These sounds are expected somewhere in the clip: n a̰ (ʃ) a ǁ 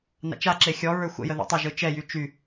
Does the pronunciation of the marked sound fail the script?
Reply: yes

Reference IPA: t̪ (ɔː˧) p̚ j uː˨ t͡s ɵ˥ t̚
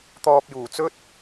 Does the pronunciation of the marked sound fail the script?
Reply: no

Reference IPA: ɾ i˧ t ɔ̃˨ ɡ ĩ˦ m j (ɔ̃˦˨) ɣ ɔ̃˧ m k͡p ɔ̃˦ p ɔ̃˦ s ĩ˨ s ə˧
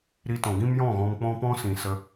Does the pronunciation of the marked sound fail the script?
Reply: no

